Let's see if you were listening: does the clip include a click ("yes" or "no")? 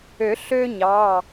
no